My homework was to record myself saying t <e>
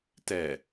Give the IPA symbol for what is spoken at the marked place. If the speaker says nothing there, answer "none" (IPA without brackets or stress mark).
ɛ